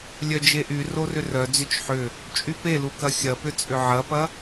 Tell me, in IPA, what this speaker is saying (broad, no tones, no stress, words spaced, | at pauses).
lʲœd͡ʒeʔy rorʏrœ d͡zʏt͡ʃħʏ | t͡ʃʼypelukɐ xʲɐpʏ t͡sʼʏʕɐpɐ